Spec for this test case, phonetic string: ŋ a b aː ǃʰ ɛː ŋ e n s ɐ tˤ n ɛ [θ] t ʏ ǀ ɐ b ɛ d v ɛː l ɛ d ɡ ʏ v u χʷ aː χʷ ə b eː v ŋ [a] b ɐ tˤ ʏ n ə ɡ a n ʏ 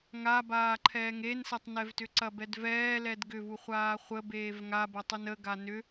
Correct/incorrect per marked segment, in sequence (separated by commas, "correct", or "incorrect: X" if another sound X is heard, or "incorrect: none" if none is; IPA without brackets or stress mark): incorrect: v, correct